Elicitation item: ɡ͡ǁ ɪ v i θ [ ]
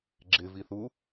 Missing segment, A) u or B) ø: A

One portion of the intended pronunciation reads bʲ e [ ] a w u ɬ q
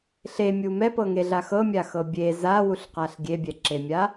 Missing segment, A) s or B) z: B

